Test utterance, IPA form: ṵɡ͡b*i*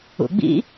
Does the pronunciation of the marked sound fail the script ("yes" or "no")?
yes